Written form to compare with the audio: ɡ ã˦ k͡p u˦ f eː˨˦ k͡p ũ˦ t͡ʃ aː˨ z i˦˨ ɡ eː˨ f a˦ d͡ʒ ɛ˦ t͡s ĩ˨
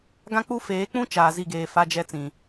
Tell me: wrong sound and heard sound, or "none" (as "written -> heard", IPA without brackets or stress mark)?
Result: none